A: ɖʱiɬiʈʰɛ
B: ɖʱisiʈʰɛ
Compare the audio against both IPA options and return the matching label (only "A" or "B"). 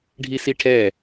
B